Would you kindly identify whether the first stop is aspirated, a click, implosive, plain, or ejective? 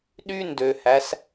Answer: implosive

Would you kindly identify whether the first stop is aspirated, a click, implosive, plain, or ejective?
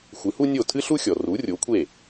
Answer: aspirated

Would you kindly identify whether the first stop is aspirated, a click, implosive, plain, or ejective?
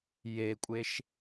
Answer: ejective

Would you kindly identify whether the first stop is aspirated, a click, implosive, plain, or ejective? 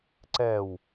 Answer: click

